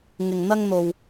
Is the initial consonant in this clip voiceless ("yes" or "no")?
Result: no